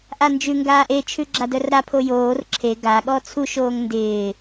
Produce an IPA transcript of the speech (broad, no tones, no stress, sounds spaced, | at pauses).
ʔ a n d͡ʒ ʉ ŋ ɡ aː ʔ e t͡ʃʰ ʉ ɡ͡ǁ a d œ r ɾ a pʰ o j oː r ǁʰ e ɡ a ɠ ɔ t͡sʰ u ʃ oː ŋ n d ɪː